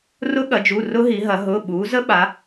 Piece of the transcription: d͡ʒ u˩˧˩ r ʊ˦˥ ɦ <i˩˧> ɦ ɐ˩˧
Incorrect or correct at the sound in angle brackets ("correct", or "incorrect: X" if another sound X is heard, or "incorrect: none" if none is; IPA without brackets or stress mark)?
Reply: correct